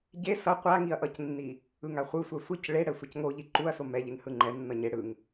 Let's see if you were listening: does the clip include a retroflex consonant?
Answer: yes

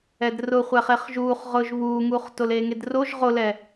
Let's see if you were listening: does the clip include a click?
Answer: no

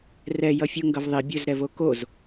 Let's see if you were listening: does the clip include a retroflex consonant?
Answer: no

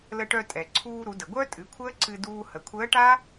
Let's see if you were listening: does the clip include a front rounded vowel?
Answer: yes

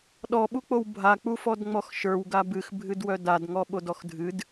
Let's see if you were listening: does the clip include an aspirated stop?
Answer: no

